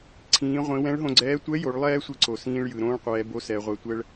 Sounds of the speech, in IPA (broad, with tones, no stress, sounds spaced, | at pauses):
ǀʰ ĩː˩˧ ʁʷ ĩ˩˧ w ɛ̃˧˥ ɭ ɦ õ˧ ɡ͡ǀ ɛː˧˥ tʷ ɛ˧˥ j o˩˧ ɭ lˠ ɛː˥ sʷ i˧ ǀ o˩ s ĩː˧ ɭ j ɯ˩ ɾ õː˥ ɭ qʷ ɛː˩˧ b o˧˥ s ɛ˩˧ ʁʷ ɛ˧ tʷ ɛ˧ ɭ